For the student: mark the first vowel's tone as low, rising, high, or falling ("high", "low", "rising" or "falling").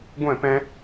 falling